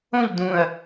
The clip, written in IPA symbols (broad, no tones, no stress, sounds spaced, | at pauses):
õ ʎ d ũ ɐ̯